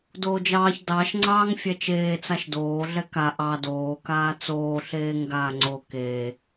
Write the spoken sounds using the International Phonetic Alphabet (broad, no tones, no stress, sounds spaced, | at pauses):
d oː d͡ʒ ɑː ç d ɑ ʃ ŋ͡ǀ ɑː ŋ fʲ ɛ t͡ʃ eː t͡s a ʃ d oː ɮ ɛ k a ʔ ɑ d oː k aː t͡s oː ɬ eː ŋ ɡ aː ŋ͡ǀ o k eː